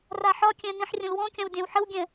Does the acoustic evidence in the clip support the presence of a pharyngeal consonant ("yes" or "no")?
yes